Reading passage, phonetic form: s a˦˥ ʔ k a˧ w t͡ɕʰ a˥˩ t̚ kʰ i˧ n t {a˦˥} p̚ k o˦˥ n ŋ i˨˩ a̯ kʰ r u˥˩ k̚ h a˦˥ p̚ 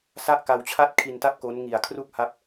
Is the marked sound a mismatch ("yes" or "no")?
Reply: yes